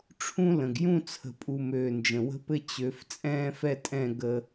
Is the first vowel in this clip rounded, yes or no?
yes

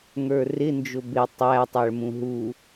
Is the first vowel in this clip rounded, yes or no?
no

